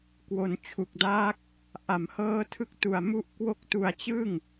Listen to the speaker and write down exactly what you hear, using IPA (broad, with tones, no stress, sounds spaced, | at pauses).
k w o˩˦ n t͡ɕʰ u˨˩ k̚ d aː˦˥ k̚ | ʔ a˩˦ m h ɤː˦˥ tʰ ɯ˦˥ k̚ t u˨˩ a̯ m u˦˥ ʔ k w o˦˥ k̚ t u˧ a̯ t͡ɕ ɯ˥˩ ŋ